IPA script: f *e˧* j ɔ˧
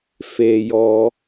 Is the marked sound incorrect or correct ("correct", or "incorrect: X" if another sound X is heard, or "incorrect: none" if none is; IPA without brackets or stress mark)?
correct